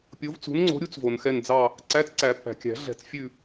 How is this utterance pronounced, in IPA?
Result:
pʲ o˨˥ v t͡s ṳ˨˥ n ŋ͡ǀ o̤˨˥ ɾʲ u˦˥ t͡s v o˩ n x ɛ˦˨ n d͡z ɑ˦˨ | ǀ æ˧˥˧ t͡s ǀ æ˨˩˦ pː æ̤˩ kʲ æ̤˨˩˦ ɮ ɛ̤˨˩˦ t͡s fʲ ʉ˦˨

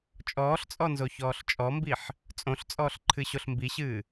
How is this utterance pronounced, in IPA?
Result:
t͡ʃʼ ɔː ɬ t͡sʼ ɔ n z o ç ɔː ɬ t͡ʃʼ ɔ m b i ħ | t͡sʼ õ ɬ t͡sʼ ɔː ɬ ǃʰ ɨ ɕ o ɬ m b i ɕ ɨː

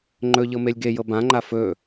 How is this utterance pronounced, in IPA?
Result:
ŋ͡ǃ ɵ ʎ ɤ m e lʲ ɡ e j ɤ b ã ŋ͡ǃ a f ɵ

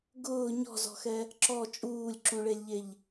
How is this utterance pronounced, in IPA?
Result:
ɡ ʊː ɲ ɔ̤ z ɔ̤ x ɛ | ǁ ɔ t͡ʃʼ uː lʲ ǁ ũ ɭ e lʲ ʎ e ʎ

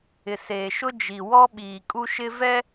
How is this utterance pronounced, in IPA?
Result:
ɪ˨ s eː˨ ʃ ʊ˦ d͡ʒ i˨ w ɔ˦ ɓ iː˨ kʼ u˦ ʃ ɪ˦ v ɛ˦

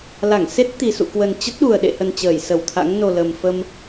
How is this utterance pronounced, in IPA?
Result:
l a˧˩ ŋ s e˦˥ t̚ t̪ i˨˩ s ṵ˧˨ k w ə˨˩ n t͡ɕ ə˦˥ t̚ ɗ u˨˩ ə̯ ɗ ḛ˧˨ h ə˨˩ n t͡ɕ əː˧˩ j s ə˧˩ w t̪ʰ a̰˧˥ ŋ n o˨˩ l ə˨˩ m f ə˧ m

